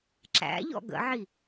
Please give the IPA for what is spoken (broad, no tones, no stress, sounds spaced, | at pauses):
ǁ æ̰ ʎ ɔ̰ ɡ ə̰ ʕ i